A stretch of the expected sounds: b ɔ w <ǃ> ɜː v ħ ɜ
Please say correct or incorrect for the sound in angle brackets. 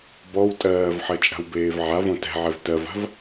incorrect: tʼ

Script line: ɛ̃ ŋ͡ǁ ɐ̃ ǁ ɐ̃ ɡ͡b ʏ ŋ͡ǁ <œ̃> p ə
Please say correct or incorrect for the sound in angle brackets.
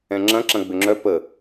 incorrect: œ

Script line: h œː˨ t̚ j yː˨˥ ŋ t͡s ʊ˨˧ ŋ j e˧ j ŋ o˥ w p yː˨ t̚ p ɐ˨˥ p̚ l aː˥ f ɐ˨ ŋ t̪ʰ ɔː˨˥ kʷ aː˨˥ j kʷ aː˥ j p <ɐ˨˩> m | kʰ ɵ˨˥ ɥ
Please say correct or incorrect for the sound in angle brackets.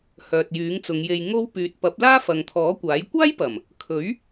correct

